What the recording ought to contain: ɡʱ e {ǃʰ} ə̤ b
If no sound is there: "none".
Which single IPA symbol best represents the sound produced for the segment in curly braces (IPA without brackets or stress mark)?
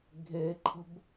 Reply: ǃʰ